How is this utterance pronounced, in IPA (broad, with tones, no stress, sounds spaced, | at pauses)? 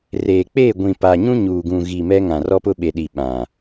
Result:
r eː˨ k͡p e˦˨ ɡʷ ĩ˨ p a˨ ɲ ũ˦ ɲ uː˨ ɡ ũ˨ ɣ i˨ m ɛ˦ ŋ ã˨ r ɔ˦ p ʊ˦ ɓ e˨ ɗ i˨ ɓ ã˨